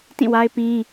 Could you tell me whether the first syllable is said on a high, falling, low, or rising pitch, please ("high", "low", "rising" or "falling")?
falling